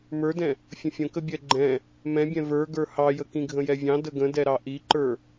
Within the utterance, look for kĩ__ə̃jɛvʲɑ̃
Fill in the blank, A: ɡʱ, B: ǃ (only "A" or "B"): A